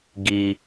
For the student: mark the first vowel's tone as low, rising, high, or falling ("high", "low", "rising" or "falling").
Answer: low